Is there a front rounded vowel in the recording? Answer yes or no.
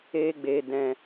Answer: no